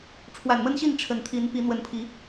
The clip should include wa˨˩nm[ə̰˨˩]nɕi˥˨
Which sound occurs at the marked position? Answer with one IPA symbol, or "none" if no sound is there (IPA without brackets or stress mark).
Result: ə˦